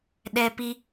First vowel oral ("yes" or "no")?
yes